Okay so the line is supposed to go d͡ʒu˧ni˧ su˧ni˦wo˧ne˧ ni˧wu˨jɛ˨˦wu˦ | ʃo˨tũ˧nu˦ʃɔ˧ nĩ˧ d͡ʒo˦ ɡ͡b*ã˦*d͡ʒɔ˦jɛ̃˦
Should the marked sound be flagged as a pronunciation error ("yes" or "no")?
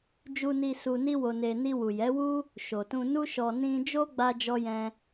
yes